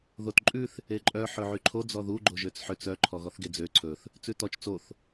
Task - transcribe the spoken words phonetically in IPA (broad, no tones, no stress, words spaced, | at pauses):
ðotǃʼʉθ | eǃʼœ ħɵʕyǃʰo d͡zɔðu ɡ͡ǃoʒøt͡sħøt͡s œ ǃʰɔɣɔθɡed͡zø ǀʰɵθ | t͡sʉtɔt͡ʃ t͡soθ